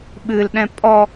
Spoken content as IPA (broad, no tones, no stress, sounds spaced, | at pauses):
ɓ ɨ l ɗ ɛ̃ pʼ ɔ